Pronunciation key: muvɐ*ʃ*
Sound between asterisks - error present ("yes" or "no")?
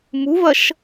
no